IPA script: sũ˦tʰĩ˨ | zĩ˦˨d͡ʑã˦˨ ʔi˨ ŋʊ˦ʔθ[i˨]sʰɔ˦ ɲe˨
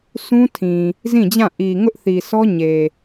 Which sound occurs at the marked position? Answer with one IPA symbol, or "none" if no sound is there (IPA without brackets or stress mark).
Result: i˨